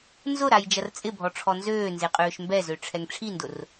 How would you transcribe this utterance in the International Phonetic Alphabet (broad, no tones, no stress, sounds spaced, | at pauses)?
n z ʊ ɾ a j d͡ʒ ɐ r t͡sʼ ɪ bʱ ɔ ʈ͡ʂʰ ɔ n z øː n z e qʼ øː ʃ m b ɛ z ø ʈ͡ʂʰ ɛ ŋ ʈ͡ʂʰ i n d ʊ r